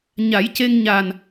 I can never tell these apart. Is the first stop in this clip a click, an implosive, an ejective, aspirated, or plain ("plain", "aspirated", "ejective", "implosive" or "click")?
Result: plain